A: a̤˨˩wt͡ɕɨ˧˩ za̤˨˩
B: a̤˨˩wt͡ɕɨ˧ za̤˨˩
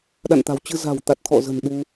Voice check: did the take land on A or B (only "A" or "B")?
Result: B